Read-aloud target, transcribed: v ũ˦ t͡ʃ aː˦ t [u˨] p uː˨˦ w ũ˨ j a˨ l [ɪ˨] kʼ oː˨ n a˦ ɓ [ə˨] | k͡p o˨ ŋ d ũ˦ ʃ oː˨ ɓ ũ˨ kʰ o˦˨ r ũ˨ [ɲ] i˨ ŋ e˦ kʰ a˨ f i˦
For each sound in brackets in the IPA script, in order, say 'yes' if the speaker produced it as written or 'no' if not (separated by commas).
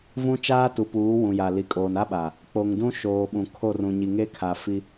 yes, no, no, yes